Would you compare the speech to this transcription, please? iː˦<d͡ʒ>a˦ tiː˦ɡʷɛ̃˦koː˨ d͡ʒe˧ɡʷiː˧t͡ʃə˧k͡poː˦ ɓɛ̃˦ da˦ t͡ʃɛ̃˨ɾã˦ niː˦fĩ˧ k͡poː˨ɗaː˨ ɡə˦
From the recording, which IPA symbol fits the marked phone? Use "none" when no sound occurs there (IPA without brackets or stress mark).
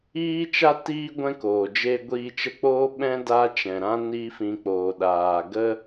t͡ʃ